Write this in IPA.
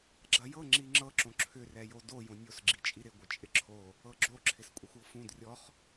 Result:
ɡ͡ǁ ɐ j ɤ ŋ͡ǁ i ŋ͡ǁ ɤ ǁ õ ǁʰ ʏ r ɛ j o d o j õ nʲ o s ɡ͡ǁ i t͡ʃʼ i ɾ ɪ ɡʷ ɪ t͡ʃʼ ɪ ǁʰ o | ɤ ɡ͡ǁ o ǁʰ ɪ s kʷʼ ɐ xʷ ɤ f ũ d rʲ ɔ χ

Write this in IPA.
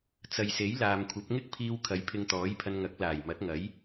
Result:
t͡s ɐ˨ j s e˨˥ j l aː˨ m kʷʰ ɐ˨˥ p̚ ŋ ɪ˥ k̚ pʰ iː˧ w kʰ ɐ˨˥ j pʰ ɪ˧ ŋ t̪ ɔː˨˥ j pʰ ɐ˧ n ŋ ɐ˨˥ k̚ l aː˨˩ j m ɐ˨˥ t̚ ŋ ɐ˨˥ j

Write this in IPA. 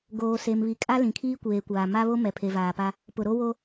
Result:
ɡ oː˨ s e˨ m β i˨ kʼ a˦ l ĩ˨ kʰ iː˦ kʷ eː˨ kʷ aː˨ m a˦ β o˦ m ɛ˨ pʰ e˨ v aː˨ p a˦ | p ʊ˨ ɾ o˦ w o˦

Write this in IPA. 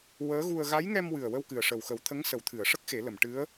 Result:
w əː˧˥ ɣ u˧ ə̯ ɣ a˧˥ j ŋ ɛ˧ m w ɨ˨˩ ə̯ w ə˧ w k ɨ˨˩ ə̯ ʂ ə˨˩ w x ə˨˩˦ w t̪ʰ ə˧˥ ŋ s ə˨˩˦ w t̪ʰ ɨ˨˩˨ ə̯ ʂ ə˦˥ k̚ x e˨˩˦ l ə˨˩˨ m ʈ ɨ˧˥ ə̯

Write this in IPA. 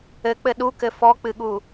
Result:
ɘ k͡p ɘ ɗ u k ɘ f ɔ k͡p ɨ ɠ u

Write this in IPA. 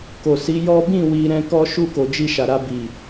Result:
k o˨ s i˨˦ j ɔ˦ b ĩ˦˨ w i˧ ɾ ɛ̃˦ k ɔ˦ ʃ u˦˨ k o˨ d͡ʒ i˧ ʃ a˨ ɾ a˧ b i˨

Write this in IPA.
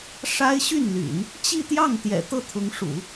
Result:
ʂ a˥ ɪ̯ ɕ y˥˩ n l y̰˨˩˦ n | t͡ɕ i˥˧ t̪ j ɑ˥˩ ŋ t̪ j ɛ̰˨˩ t̪ ɤ˥˩ t̪ʰ ʊ˧˥ ŋ ʂ ṵ˨˩˦

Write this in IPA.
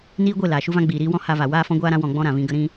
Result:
n iː˧ ɡʷ e˦˨ l aː˨ ʃ u˦ v ã˦ ɡ͡b iː˨ ɾ iː˧ w ɔ̃˦ h a˧ v a˨ w aː˦ f ɔ̃˦ ɡʷ aː˦ ɾ ã˦ w ɔ̃˧ ɡ͡b ɔ̃˦ ɾ ã˨ v ĩ˧ ɡ ə˦ ɾ ĩ˦

